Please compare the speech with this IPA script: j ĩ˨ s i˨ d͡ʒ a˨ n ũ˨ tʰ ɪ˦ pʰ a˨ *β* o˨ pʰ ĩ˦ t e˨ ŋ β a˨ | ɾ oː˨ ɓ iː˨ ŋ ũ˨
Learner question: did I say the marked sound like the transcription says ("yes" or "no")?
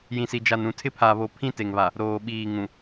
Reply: yes